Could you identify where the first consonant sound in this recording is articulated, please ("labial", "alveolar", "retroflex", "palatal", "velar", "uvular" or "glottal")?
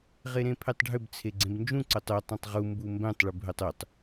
uvular